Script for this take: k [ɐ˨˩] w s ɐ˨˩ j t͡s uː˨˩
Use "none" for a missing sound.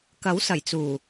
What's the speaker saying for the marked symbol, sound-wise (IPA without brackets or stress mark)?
ɐ˨˥